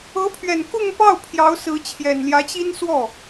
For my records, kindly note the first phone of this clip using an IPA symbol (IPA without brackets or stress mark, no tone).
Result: ɤ